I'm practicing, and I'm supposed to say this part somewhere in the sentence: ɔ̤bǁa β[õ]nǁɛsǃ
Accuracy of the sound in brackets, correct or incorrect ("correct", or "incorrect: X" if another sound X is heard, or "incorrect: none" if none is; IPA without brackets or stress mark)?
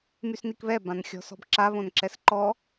correct